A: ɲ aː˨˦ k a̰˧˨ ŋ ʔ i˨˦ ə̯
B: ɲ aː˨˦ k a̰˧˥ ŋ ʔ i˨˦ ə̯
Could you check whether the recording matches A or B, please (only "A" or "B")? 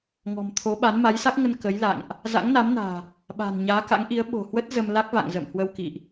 B